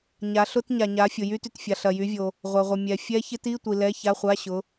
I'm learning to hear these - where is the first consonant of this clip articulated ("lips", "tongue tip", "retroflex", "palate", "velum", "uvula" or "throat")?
palate